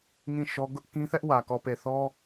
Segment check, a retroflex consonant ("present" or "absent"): absent